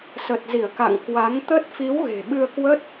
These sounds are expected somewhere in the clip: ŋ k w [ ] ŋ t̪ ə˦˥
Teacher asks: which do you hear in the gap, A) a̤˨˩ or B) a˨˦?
B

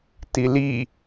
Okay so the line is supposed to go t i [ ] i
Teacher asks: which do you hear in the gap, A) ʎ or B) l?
B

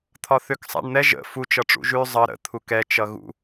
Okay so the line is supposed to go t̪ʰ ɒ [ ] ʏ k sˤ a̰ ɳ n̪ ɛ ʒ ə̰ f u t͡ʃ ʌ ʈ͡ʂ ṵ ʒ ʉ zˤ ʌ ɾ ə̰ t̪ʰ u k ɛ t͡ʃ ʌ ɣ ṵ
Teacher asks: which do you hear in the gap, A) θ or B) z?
A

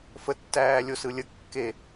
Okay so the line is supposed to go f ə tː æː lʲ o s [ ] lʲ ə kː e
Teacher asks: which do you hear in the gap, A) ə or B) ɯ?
B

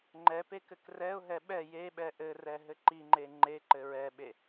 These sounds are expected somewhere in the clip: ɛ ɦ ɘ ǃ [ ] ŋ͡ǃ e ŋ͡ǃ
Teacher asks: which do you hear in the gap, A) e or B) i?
B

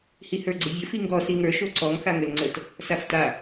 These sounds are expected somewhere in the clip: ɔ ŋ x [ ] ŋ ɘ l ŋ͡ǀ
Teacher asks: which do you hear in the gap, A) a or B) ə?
A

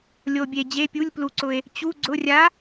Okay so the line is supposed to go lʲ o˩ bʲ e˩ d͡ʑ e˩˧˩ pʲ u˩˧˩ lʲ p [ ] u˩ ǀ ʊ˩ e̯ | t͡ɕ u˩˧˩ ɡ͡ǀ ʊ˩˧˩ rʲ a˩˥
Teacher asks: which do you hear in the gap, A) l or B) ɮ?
A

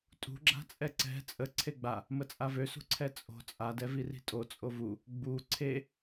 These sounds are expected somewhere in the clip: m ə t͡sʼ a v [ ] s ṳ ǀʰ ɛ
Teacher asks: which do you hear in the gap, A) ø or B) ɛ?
A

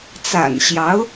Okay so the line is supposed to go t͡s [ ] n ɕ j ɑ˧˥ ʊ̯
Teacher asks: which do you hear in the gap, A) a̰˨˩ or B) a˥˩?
A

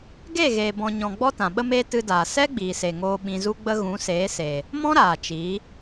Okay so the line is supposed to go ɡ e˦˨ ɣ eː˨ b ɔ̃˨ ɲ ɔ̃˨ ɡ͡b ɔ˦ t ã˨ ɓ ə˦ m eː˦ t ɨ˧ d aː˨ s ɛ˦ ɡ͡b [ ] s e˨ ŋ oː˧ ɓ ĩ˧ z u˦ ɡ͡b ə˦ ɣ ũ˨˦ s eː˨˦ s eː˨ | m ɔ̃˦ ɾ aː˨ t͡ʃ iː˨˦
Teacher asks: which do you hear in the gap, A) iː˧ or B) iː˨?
B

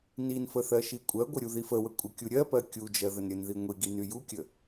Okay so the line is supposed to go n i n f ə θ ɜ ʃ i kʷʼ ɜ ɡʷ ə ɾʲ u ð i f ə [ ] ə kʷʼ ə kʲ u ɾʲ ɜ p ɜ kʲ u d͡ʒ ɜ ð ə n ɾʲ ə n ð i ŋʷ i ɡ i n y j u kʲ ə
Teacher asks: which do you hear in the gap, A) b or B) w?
B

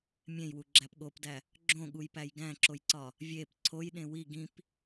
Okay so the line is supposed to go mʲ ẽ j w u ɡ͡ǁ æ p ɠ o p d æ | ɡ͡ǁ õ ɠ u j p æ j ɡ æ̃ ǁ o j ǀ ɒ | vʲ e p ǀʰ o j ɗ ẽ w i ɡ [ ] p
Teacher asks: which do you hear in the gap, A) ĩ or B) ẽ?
A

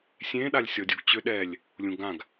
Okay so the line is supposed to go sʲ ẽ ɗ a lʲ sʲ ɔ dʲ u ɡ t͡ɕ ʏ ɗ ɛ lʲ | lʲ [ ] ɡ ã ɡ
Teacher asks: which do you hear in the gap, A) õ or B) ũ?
B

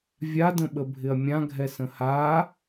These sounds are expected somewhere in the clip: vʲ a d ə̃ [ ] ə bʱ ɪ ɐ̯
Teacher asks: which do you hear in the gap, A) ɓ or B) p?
A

